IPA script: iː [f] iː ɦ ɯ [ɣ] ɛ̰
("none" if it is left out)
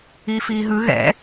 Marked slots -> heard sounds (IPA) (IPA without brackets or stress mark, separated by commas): f, ɣ